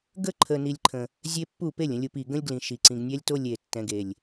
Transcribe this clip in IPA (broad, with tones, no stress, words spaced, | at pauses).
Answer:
ɡə˦ ǃʰə˨ni˨lʲǃʰə̃˨ | zʲe˦pːu˦˨ pe˦˨lʲə̃˨lʲu˨p i˨ ɡə̃˦lʲɡlĩ˨ʃi˨ǀĩ˨ɡ nʲɛ˦lʲto˦lʲe˨tːɛ̃˨ɡ e˨lʲ